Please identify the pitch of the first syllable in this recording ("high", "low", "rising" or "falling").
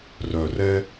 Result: low